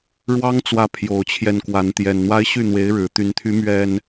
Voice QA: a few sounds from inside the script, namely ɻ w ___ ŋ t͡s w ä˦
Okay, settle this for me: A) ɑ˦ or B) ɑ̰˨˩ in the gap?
A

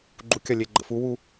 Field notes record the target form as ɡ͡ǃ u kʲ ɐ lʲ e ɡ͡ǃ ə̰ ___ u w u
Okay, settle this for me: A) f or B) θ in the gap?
A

